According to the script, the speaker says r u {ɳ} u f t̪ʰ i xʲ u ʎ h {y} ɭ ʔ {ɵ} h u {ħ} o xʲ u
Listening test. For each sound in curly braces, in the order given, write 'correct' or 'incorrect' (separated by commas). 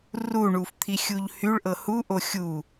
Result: correct, correct, incorrect, incorrect